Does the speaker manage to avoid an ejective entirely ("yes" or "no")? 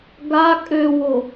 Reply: no